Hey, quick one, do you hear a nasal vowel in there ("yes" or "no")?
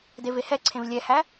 yes